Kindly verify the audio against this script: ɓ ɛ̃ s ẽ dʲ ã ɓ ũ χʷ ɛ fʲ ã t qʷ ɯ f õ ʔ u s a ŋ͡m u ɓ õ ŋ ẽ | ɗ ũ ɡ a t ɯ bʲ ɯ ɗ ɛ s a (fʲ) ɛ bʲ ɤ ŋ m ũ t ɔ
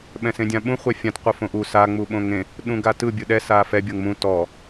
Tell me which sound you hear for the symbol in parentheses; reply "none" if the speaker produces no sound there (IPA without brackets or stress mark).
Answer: f